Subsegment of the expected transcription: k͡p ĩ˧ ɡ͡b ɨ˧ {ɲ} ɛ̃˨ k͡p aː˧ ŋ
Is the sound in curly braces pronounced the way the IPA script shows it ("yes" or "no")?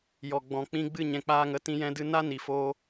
yes